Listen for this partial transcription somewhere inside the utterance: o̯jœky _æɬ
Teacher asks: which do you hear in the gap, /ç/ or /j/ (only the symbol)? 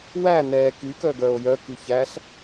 ç